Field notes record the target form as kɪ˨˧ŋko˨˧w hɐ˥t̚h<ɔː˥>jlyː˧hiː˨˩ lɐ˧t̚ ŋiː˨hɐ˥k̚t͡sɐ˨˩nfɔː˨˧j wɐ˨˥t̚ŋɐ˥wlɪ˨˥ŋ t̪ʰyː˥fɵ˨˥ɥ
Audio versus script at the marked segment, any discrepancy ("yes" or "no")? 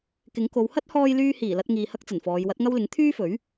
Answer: yes